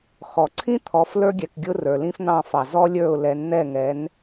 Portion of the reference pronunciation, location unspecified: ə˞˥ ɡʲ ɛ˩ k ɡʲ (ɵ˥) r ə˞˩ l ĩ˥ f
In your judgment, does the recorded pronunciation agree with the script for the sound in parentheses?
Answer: no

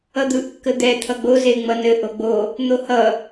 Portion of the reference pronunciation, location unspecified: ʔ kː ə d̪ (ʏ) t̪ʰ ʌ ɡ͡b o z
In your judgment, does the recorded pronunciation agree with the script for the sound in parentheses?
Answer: no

